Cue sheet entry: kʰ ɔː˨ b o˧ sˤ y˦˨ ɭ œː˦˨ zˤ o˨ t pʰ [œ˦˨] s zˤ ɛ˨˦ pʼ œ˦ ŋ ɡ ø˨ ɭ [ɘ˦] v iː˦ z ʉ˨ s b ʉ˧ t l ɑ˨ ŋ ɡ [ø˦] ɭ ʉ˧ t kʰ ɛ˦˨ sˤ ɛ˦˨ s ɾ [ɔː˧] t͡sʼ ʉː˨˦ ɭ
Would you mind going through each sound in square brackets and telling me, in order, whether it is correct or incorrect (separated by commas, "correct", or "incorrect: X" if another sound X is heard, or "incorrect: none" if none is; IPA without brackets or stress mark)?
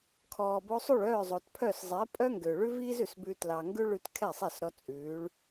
correct, incorrect: ʉ˦, incorrect: ʉ˦, incorrect: ɔ˧